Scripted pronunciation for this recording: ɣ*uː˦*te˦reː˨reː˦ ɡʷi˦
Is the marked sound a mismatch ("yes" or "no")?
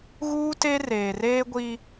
no